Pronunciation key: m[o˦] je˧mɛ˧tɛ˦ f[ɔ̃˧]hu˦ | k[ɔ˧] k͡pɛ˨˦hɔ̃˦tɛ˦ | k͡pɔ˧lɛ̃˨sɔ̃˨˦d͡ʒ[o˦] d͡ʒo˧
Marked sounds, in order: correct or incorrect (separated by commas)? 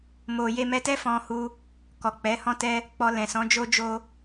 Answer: incorrect, incorrect, incorrect, correct